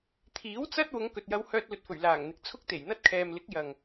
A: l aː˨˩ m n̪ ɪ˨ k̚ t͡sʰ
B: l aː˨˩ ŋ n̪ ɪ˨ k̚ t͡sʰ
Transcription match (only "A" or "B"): B